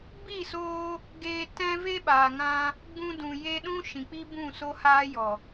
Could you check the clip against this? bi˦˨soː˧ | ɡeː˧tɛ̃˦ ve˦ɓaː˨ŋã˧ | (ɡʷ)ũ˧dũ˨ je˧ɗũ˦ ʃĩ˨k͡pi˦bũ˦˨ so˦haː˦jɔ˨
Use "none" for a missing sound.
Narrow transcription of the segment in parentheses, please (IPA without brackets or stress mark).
ɡ͡b